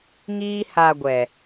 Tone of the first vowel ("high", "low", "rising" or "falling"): high